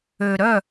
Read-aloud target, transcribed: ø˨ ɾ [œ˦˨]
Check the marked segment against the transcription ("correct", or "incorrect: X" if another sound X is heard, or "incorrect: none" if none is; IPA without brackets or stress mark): correct